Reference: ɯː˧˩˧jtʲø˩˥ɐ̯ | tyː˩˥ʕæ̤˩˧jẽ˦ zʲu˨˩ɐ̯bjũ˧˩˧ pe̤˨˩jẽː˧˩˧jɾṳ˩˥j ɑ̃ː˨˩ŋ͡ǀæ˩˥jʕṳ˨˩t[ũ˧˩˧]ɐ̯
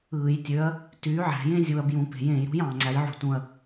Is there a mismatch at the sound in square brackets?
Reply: yes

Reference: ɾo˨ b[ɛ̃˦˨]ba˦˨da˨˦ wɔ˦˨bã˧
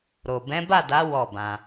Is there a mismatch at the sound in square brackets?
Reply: yes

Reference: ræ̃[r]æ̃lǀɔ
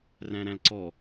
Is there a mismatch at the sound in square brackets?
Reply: yes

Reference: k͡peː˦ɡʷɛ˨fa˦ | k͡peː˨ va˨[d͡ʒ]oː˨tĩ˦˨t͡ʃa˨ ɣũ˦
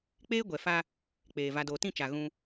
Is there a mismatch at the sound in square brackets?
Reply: yes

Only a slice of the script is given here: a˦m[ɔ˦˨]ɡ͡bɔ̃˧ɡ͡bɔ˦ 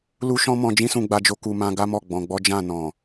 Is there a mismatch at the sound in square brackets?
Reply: no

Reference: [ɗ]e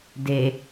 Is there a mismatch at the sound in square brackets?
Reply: yes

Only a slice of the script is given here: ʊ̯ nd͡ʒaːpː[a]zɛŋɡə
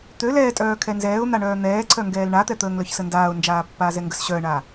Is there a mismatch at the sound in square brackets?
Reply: yes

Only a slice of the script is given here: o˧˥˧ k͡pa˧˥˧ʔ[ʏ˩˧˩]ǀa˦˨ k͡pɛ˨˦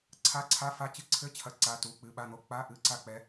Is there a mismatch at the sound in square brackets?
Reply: yes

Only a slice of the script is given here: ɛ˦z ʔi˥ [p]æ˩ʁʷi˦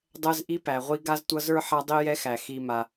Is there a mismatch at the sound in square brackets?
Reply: no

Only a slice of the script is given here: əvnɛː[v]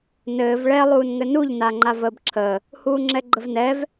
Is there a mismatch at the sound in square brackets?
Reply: no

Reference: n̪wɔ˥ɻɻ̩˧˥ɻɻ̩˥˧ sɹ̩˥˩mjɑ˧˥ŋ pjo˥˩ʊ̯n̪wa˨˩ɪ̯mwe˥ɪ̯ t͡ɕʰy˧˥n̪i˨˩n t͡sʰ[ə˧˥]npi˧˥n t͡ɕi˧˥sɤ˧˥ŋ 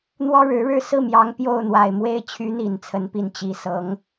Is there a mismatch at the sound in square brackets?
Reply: no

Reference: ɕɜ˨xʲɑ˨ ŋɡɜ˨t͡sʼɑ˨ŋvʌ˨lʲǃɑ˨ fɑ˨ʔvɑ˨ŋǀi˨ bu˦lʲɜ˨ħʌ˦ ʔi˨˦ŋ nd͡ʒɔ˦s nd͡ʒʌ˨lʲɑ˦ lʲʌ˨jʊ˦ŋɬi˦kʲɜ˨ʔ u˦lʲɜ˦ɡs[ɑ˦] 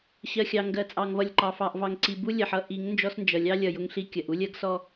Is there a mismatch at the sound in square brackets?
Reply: yes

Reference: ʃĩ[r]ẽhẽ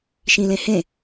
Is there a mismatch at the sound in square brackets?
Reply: yes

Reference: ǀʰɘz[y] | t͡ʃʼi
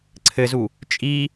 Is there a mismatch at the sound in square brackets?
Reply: yes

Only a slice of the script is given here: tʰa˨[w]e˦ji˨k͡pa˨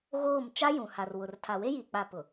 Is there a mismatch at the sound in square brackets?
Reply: no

